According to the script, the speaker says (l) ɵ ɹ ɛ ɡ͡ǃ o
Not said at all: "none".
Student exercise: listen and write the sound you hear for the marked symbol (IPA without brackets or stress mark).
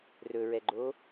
r